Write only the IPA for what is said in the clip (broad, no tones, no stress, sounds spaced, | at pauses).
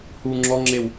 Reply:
h u ŋ͡ǁ ɔ ŋ͡ǁ e w